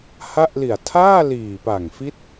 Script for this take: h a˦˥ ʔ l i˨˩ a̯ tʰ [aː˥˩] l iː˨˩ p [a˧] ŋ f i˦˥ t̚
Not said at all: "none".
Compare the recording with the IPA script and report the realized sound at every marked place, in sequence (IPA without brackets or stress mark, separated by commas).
aː˥˩, a˨˩